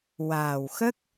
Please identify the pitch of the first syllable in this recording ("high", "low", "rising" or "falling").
low